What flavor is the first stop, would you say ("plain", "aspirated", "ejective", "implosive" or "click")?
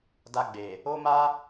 plain